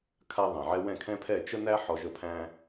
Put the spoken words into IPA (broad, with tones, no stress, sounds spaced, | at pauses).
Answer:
kʰ a˥ ðˤ ɛ̃˩ ʕ ɛ˥ w ɛ̃˥˩ kʰ ɛ̃˥ pʰ ɛ˥˩ t͡ʃ ə˥ n æ˥ ħ ɔ˧ ʒ ə˥˩ pʰ æ̃˥